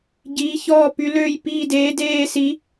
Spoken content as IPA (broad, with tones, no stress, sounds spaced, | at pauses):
ɟ iː˧˥ ç ɔː˥˧ p y˧˥ l øː˥˧ j p iː˥˧ d eː˧˥ d eː˥˧ s i˧˥